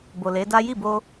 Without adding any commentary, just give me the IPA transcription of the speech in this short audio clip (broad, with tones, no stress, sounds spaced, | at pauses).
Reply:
b o˨ l e˨˦ d a˦ j i˦˨ b o˧